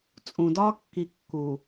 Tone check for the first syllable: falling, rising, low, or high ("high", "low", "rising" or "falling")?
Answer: low